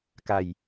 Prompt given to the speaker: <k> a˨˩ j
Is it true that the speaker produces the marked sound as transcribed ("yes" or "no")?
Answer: yes